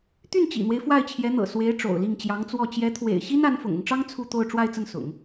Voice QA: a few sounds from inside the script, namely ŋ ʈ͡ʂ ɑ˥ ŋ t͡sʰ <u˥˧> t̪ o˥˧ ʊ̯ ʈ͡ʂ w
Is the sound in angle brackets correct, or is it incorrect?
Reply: correct